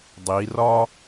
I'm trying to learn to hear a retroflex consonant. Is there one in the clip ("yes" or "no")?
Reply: no